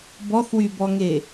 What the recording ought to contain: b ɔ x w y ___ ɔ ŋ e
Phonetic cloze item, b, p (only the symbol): b